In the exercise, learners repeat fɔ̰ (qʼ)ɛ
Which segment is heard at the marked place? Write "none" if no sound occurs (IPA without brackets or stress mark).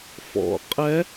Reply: qʼ